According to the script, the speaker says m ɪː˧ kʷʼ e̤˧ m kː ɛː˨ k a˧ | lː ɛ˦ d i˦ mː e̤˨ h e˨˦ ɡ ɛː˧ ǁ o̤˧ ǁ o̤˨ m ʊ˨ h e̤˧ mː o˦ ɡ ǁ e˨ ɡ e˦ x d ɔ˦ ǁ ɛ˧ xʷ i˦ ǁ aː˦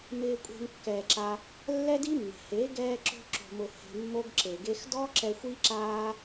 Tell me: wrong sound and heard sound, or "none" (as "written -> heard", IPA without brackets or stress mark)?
k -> ǁ